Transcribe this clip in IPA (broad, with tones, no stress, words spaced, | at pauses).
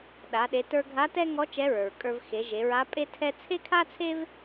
ɗa˩˧ ɗe˩˧tə˞˧ɡʱa˧˥ tɛ˥ŋɔ˧˥ t͡ʃɛ˧˥ɹə˞˩ɹkʼə˞˧v xe˩˧ʒe˩˧ɹa˧˥ pʼe˥ tʰɛ˥ t͡sʰe˥kʰa˥t͡sʰe˥v